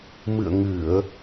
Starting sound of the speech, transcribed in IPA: m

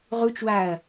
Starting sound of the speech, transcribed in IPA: ʁ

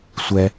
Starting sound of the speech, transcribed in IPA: sʷ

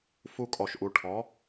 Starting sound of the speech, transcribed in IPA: f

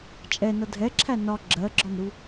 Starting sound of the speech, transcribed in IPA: t͡ʃʼ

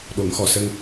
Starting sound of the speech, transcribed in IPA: ɗ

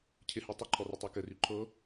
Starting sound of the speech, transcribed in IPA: cʰ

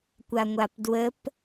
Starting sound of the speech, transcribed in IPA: kʷ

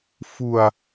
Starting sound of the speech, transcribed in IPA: f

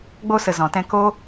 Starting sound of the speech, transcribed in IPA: ɡ͡b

